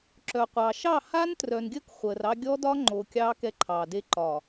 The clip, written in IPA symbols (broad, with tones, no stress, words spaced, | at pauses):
ǁœ˨qʷɑ˨ ʃɑ˦˨haː˦n trœ˨nɡʲəː˦k χʷəː˨rɑ˦ ɡʲɔ˦dɒ˦ŋ͡ǃo˨ kʲɑː˦kɛ˦ǃʰɑː˨de˦ ǃɒ˨